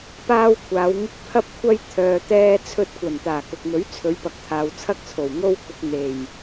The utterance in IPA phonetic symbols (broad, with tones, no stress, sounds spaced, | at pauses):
p aː˥ w kʷʰ aː˨˧ w ŋ ɪ˥ k̚ pʰ ɐ˥ p̚ kʷʰ ɐ˥ j t̪ʰ œː˧ t̪ ɛː˥ t͡sʰ ɵ˧ t̚ kʷ ɐ˨˩ n t̪ aː˨˩ k ʊ˨ k̚ m ɵ˨˥ ɥ t͡sʰ ɵ˨˧ ɥ p ɐ˨ k̚ t̪ʰ aː˨ w t͡sʰ ɐ˥ k̚ t͡sʰ o˨˩ w ŋ o˥ w k ʊ˧ k̚ n̪ e˨˩ j